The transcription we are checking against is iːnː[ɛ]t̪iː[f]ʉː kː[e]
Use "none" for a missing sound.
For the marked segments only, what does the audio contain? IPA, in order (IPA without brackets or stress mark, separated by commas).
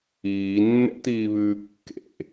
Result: ɛ̰, β, ḛ